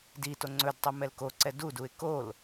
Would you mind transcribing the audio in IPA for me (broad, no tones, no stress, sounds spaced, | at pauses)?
d i t o ŋ͡ǀ ɵ d tˤ ɵ m ɛ l k o ǀ ɛ d u d u ɪ̯ k o l